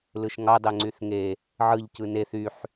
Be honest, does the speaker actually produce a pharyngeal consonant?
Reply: yes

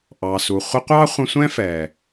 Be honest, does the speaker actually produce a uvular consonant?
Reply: yes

